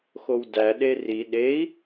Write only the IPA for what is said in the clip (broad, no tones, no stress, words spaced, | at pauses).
xowdæ ɗeri ɗei̯